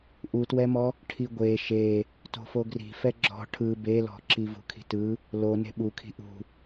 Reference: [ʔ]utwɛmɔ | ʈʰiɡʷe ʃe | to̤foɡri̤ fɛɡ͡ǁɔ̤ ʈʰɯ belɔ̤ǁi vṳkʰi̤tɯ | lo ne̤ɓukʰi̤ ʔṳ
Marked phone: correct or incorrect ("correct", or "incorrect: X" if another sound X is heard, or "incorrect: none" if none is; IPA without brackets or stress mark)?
correct